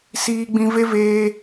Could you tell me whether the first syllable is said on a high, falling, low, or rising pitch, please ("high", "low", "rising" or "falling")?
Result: high